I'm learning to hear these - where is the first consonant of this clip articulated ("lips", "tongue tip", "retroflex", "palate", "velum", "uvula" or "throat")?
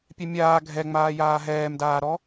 lips